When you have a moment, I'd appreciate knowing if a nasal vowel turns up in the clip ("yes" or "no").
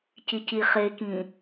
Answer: yes